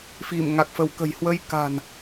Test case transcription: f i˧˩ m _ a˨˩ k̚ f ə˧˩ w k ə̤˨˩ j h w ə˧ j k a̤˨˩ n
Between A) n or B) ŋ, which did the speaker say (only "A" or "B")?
B